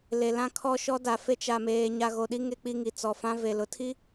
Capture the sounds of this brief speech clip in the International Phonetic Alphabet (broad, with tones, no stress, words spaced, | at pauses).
le˨lã˦kʰɔ˦ ʃɔ˦da˨fe˦ t͡ʃa˨meː˨ ɲa˨ɣo˨ɗi˦ ŋe˦k͡pi˦ŋi˨t͡sɔ˨ fã˦ve˨lʊ˨˦tʰi˦